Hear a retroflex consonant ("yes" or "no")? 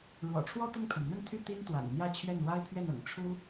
yes